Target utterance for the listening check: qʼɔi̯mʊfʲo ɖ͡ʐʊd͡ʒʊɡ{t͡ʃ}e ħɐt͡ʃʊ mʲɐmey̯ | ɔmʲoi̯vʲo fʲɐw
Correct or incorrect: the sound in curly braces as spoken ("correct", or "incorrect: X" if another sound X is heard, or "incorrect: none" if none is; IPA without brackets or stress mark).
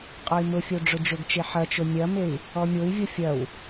correct